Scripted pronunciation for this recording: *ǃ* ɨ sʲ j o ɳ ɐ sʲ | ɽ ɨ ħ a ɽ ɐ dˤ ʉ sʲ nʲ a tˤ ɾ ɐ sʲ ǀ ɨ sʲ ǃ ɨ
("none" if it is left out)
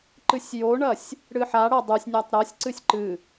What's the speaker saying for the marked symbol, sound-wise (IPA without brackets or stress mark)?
ǃ